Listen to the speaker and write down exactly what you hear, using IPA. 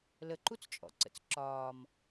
l ə ǃ u t͡s t͡ʃʼ ɔ̰ ǀ ə̰ t͡s ǁ ɒː m

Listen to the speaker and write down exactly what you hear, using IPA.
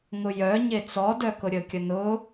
ŋ ʊ j œ ɲ e t͡s ɔ d œ k ʊ ɾʲ ə kʲ ə n ʊ

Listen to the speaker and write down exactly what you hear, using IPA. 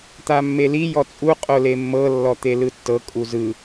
t̪ a mː e l i j ɔ t͡sʼ u qʼ o l e mː ɤ lː ɔ t̪ e l ɯ tː ɤ kʼ u z ɯ

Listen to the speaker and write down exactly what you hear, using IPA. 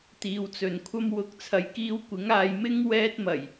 t̪ iː˨˧ w t͡s ɵ˨ n kʷʰ ɐ˥ m w ʊ˨˥ k̚ t͡sʰ ɐ˨˥ j k iː˧ w kʷ ɪ˨˥ ŋ aː˧ j m ɪ˥ ŋ w ɛː˧ t̚ m ɐ˨˩ j

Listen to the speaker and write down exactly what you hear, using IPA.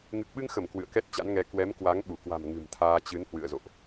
ŋ ɨ˨˩ k̚ ɓ ɨ˧ ŋ x ə˧˩ m k w ɨ̰˧˨ ə̯ k ɛ˦˥ t̚ t͡ɕ a̰˧˥ n ŋ ɛ˨˦ k w ɛ˨˦ m k w a˨˦ ŋ ɓ u˧˩ k w a̤˨˩ m ŋ ɨ̤˨˩ m t̪ʰ aː˧ t͡ɕ ɨ˨˦ n h w ɨ̰˧˨ ə̯ z o̰˧˨ ʔ

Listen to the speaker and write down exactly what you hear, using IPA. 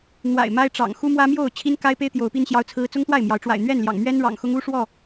n̪ w a̰˨˩ ɪ̯ m a˦ ɪ̯ ʈ͡ʂ ɑ̰˨˩ ŋ x u˦ m w ä˦ m j o˥˨ ʊ̯ t͡ɕʰ i˦ n k a˦ ɪ̯ p e˦ ɪ̯ t̪ j o˨˦ ʊ̯ p i˦ n ɕ j ɑ˦ ʊ̯ t͡sʰ ɹ̩˦ t͡s ʊ˦ ŋ t̪ w a˥˨ ɪ̯ m j ɑ˨˦ ʊ̯ ʈ͡ʂ w a̰˨˩ ɪ̯ n̪ ɥ ɛ˥˨ n l j ɑ̰˨˩ ŋ m ɥ ɛ˦ n ɻ ɑ̰˨˩ ŋ x ʊ˦ ŋ u˦ ʂ w ɔ˥˨

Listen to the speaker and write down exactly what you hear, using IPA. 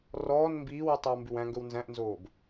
r ɔː n m b iː w y tˤ e w m b ʉ w æ̃ ŋ ɡ ɵ w n z æ̃ ʔ n z oː b

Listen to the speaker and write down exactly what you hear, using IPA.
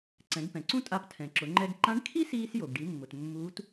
ǀ ɛ̃˩˧ ɡ p ɛ̃˩ ǀ ũ˥ tʼ a˧ p tʰ ɛ̃˩ ǁ ʊ˩˧ ŋ͡ǃ ɛ˧ ɡ ǃ ã˧˥ ɖ kʰ i˥ s iː˧ s j o˩ ɡ ɖ i˩˧ mː ʊ˩ t mː uː˧˥ t

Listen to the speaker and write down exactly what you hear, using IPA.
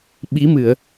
ɓ i˨˦ m ɨ˧˩˨ ə̯

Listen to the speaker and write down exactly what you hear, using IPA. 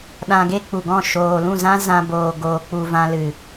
ɗ ã˧ ɡ e˦ k͡p u˨ ɡ ɔ̃˦˨ ʃ oː˨ l ũ˦˨ z ã˦ z ã˧ b oː˨ ɡ oː˨ k͡p u˨ v ã˧ l ɨ˨

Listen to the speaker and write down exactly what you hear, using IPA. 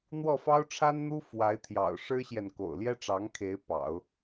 n̪ w ɔ˥˩ f ɑ˥ ʊ̯ ʈ͡ʂʰ a˥ n n̪ u˥ f w a˧˥ ɪ̯ t̪ʰ j ɑ̰˨˩ ʊ̯ ʂ ɻ̩˥ ɕ j ɛ˨ n k o̰˨˩ ʊ̯ l j ɛ˥ ʈ͡ʂ ɑ˧˥ ŋ kʰ e˧˥ ɪ̯ p ɑ̰˨˩˦ ʊ̯

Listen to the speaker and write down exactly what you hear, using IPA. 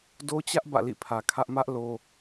d o˦ t͡ɕ ä˦ ʔ b ä̰˦˨ l ḭ˦˨ pʰ ä˨ kʰ ä˦ ʔ m ä˦ ʔ l o˦

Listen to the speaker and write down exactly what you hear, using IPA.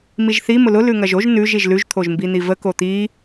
m i ʒ θ i m ʊ l ʊ l ʉ ŋ ɐ ʒ o ʒ n ʉ ʒ i ʒ l ʉ ʒ t̪ʰ o ʒ m b i n̪ i v ə k o t̪ i

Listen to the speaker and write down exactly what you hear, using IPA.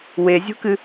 w e zʲ o̤ k ɨ

